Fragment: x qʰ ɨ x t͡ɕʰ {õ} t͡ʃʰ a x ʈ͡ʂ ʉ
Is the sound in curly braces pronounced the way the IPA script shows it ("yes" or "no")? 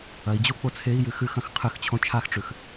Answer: yes